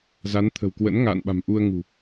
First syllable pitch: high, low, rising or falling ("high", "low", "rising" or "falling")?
rising